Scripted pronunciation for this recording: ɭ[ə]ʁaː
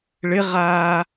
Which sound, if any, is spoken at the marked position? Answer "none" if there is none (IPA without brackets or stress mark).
ɪ